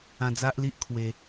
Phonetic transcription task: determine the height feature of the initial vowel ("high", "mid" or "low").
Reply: low